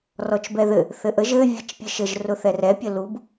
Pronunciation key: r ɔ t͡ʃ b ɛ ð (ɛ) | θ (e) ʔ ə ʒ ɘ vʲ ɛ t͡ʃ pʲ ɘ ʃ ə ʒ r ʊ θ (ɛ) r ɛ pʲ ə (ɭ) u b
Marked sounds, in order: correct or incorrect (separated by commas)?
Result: incorrect, incorrect, correct, incorrect